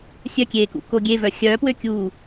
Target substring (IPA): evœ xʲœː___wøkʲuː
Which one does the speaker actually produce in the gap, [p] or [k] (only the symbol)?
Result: p